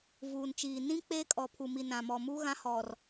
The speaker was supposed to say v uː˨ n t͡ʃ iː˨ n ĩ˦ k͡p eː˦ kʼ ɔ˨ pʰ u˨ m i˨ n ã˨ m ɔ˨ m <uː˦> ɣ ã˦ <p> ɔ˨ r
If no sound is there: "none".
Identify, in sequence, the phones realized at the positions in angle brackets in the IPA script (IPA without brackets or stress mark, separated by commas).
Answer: uː˦, h